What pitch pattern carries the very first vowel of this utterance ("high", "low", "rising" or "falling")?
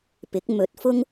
rising